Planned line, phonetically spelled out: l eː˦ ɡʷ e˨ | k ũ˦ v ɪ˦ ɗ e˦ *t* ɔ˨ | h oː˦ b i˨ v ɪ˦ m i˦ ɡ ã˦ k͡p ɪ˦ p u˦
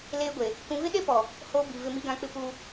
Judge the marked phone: incorrect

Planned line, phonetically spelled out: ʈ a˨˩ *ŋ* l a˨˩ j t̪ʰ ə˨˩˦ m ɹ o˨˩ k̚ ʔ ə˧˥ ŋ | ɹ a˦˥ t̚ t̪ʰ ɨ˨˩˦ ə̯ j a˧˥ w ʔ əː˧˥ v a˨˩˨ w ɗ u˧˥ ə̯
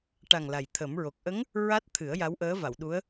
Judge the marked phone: correct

